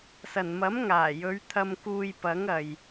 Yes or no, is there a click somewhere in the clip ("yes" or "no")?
no